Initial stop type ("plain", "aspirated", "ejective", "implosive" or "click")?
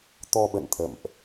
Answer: plain